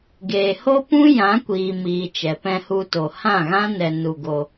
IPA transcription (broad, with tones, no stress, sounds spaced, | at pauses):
ɡ eː˨ h o˦ p ũ˦ j ã˨˦ kʷ iː˨ m iː˨ t͡ʃ ɛ˨ p ɛ̃˧ h u˧ t o˧ h ã˦˨ ɣ ã˦ n ɛ˧ n u˧ ɡ o˧